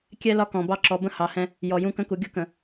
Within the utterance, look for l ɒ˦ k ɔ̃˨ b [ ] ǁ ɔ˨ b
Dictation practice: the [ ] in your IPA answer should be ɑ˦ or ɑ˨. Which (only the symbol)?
ɑ˦